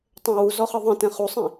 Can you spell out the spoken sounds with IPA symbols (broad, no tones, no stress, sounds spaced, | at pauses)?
tˤ ɛ̃ w u z ɔ χ ɯ ðˤ ĩ t ɛ̃ χ u sˤ ĩ